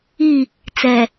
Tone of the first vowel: falling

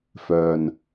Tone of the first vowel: low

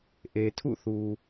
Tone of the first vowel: low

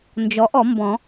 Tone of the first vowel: rising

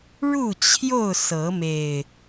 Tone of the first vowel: falling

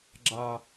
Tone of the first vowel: low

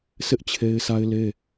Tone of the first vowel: high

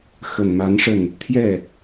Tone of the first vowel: low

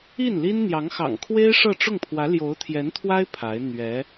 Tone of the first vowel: falling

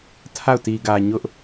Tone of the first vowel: falling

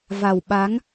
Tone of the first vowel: low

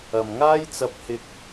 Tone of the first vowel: low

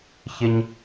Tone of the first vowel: high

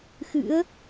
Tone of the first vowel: rising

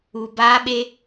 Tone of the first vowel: low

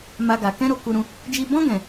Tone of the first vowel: high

